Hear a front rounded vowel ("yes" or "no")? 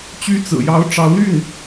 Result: yes